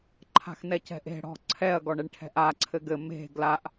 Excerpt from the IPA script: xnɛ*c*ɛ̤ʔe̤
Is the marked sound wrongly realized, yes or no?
no